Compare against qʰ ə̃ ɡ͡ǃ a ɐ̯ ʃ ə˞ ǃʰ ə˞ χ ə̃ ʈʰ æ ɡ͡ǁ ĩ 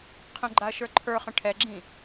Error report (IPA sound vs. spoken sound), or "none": æ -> ɛ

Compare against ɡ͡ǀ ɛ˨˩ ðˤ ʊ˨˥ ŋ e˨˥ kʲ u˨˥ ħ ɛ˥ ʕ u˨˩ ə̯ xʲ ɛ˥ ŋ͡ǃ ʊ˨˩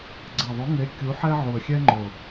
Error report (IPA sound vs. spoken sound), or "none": none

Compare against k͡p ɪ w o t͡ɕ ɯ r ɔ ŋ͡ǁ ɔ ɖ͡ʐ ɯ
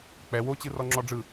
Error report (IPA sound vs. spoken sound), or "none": ɪ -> ɛ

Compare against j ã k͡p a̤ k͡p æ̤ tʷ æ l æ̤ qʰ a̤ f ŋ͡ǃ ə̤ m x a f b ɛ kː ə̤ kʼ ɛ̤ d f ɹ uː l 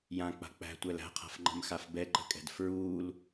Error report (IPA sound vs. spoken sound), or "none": kː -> ǃ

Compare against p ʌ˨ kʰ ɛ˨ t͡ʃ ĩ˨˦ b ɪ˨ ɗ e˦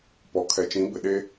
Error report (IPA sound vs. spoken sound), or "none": ʌ˨ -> ɔ˨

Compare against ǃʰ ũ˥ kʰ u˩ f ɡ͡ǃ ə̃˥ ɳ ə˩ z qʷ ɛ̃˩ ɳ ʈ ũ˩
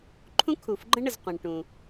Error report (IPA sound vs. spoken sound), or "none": none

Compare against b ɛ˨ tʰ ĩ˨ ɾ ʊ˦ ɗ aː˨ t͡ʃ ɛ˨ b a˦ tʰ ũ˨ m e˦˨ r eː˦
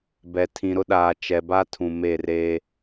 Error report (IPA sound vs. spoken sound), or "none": none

